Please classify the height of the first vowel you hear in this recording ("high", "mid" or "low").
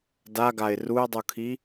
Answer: low